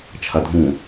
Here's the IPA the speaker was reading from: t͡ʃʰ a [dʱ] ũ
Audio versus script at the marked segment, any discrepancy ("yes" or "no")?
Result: no